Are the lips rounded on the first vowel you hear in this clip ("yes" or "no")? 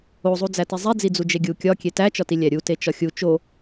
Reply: yes